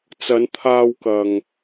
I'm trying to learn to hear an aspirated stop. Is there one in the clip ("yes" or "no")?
yes